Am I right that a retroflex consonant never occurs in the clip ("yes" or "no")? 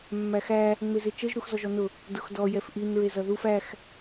yes